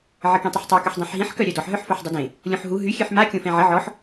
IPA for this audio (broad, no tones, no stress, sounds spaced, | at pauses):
ʕ ə k ẽ tˤ ə ħ tˤ œ k ø ħ dˤ ɛ̃ ħ ɦ ĩ ħ k œ ɾʲ œ d ɔ ħ ɦ œ ħ f o ħ dˤ ə d ẽ | lʲ õ ħ ɦ u ɦ y xʲ ø ħ m a kʲ õ f ɛ̃ ʕ ə ʕ ɔ ħ